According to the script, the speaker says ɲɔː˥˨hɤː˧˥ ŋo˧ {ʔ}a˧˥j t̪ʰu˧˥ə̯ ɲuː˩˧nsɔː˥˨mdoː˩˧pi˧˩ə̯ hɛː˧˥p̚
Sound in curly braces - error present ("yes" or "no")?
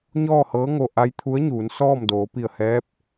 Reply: no